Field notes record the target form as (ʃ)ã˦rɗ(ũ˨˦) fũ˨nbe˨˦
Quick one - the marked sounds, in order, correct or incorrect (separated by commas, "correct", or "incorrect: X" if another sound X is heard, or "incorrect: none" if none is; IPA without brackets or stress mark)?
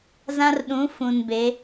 incorrect: z, correct